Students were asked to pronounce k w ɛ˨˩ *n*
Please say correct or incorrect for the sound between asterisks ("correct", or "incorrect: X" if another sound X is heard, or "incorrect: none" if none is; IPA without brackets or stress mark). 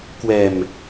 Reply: incorrect: m